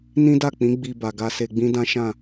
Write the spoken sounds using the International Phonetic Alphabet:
nĩ˦da˦˨k͡pĩ˨˦ ɡ͡bi˧ba˨ɡa˧ se˧ɡ͡bĩ˦dã˦ʃã˦˨

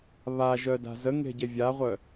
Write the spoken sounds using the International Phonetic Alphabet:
βaʒœ da̤zəŋe̤ ɟevʲaʁʷœ

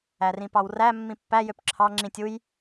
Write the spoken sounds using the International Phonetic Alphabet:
ærĩpɑwræ mːĩpːæ jøpǁʰɑ ŋ͡ǁĩtʲ uj

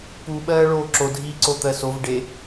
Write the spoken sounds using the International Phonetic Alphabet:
pu ɓɜːɭoːǁo dʱiːǀot̪ɜsov ɖe

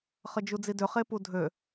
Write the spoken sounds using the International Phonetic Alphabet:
χəd͡ʒud͡zidø χepudʱø

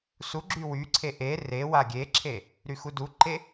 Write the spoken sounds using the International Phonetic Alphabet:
suɡ͡ǁy wyǀʰe ʔe rewa ɡʲeǁʰe | ɾyxuduǃe

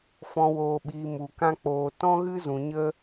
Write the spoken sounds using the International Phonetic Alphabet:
fɔ̃˨woː˨ɓiː˨ mu˨kã˦k͡poː˧ tɔ̃˦ɣɨ˦ zũ˨ɲə˦

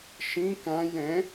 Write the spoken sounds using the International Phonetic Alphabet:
ʃĩ kãj ɛ̃

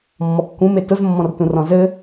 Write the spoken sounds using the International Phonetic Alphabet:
mːɔkːũm etʊz mːɔ̃rtũrɔ̃zɘ

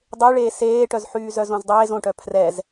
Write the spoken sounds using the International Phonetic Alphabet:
dˤe ɭeːseːʈœzħyː zœzõzdˤeːz õʈœ pʰrɛz

